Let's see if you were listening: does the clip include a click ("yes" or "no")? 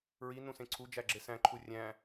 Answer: yes